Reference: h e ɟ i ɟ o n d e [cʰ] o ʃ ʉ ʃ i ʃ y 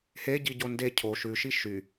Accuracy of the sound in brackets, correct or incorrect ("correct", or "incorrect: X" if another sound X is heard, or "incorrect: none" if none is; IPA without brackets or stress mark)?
correct